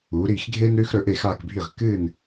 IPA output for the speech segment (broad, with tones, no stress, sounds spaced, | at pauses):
uː˩˧ ɾ iː˧˩ x ɡʱ eː˦ n ɾ ʉː˦ x ɾ ɵ˩˧ ʔ e˧˩ x aː˧˩ k bʱ i˧˩ ʁ k ɨː˧˩ n